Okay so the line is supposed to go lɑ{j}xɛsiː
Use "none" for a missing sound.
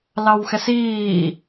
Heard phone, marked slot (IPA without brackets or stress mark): w